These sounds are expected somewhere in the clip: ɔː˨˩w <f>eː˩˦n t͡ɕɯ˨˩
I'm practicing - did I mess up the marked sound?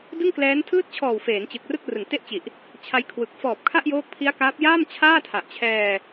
no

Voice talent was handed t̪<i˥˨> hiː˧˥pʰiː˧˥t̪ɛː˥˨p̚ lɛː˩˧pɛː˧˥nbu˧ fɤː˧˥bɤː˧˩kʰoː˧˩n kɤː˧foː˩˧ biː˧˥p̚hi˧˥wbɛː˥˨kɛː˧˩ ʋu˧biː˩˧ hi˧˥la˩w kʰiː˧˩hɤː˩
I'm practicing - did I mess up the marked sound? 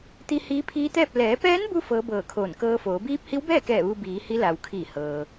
yes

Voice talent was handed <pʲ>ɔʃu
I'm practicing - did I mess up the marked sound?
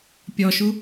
no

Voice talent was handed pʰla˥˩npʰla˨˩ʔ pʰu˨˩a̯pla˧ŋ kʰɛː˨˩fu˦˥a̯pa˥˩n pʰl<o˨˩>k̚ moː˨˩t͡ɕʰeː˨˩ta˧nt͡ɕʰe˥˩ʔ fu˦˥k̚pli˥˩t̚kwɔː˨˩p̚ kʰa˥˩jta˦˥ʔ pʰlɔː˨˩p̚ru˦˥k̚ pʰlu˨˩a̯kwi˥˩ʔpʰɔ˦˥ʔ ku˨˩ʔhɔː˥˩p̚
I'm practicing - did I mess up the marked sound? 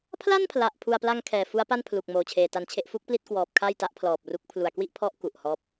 yes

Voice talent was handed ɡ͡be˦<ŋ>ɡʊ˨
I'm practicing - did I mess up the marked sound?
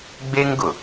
no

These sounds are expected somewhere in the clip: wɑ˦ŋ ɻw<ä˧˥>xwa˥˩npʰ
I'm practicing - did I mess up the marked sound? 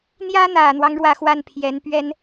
yes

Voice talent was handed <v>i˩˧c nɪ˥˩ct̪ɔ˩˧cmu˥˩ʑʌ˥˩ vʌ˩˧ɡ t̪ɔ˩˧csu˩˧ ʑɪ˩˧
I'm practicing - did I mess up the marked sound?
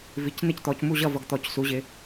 no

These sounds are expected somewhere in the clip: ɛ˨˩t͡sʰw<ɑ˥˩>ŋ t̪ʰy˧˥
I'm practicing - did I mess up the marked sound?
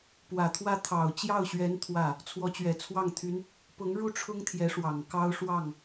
no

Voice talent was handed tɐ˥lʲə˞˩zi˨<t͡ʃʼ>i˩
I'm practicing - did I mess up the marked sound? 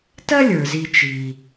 yes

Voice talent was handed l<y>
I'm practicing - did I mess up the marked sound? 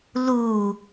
yes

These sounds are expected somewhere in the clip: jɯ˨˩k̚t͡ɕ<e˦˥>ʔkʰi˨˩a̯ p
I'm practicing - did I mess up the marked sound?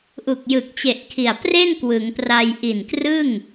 yes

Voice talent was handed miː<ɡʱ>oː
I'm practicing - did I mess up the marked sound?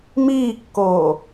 yes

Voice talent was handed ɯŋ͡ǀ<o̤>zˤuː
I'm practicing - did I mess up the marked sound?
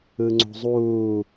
no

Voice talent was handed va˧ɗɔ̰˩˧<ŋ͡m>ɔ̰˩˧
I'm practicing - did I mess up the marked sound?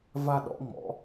no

